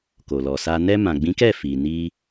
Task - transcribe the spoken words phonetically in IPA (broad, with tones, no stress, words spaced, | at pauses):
ko˨lɔ˨sa˧ nɛ˧ mã˨ɡ͡bĩ˨˦kɛ˦˨ fi˨ni˧